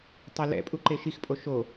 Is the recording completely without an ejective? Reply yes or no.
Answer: no